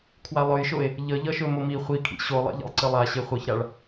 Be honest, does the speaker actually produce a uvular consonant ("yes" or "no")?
yes